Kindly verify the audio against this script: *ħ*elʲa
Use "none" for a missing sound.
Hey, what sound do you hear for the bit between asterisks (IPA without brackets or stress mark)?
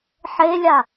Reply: ħ